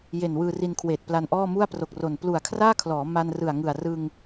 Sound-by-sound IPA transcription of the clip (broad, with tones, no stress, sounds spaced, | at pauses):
j e˨˩ n w ɯː˧ r i˧ n kʰ w eː˨˩ t̚ p l a˧ n ʔ ɔː˥˩ m u˥˩ a̯ p r o˨˩ k̚ r o˨˩ n p l u˨˩ a̯ kʰ r aː˥˩ kʰ l ɔː˩˦ m a˧ n r ɯ˨˩ a̯ ŋ ɯ˨˩ a̯ r ɯ˧ ŋ